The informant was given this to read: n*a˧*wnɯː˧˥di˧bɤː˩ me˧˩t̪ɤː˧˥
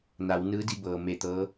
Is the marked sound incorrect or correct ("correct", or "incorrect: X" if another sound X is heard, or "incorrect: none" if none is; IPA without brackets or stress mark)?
incorrect: a˩˧